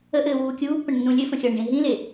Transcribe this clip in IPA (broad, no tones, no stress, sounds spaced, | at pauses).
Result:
ə ʔ ɘː w uː kʲ uː pː ə̃ ɳ nː ũ lʲ ɘ f ə̃ xʲ ʌː ɳ ɖ ẽ ɦ ĩ l e